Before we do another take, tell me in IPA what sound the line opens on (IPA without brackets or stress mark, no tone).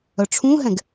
œ